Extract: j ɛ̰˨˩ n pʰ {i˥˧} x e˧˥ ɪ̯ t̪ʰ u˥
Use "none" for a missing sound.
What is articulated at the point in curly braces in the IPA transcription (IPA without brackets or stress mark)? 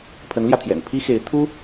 i˥